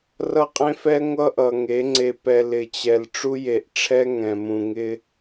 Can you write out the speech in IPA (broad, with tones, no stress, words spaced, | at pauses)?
rʌ˦qʼẽ˦fɛ˦ ŋʷʌ˦ʔʌ˨ŋe˨˦ ŋ͡ǀe˨pɛ˨ lɪ˨t͡ɕɛ˨l ʈ͡ʂu˦je˨ʔʈ͡ʂʰɛ˦ ŋɛ̃˨mũ˨ŋɪ˦